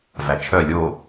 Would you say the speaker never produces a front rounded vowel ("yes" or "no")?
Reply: no